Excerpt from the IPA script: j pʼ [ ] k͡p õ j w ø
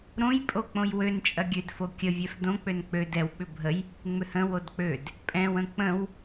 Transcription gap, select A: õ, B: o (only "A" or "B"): B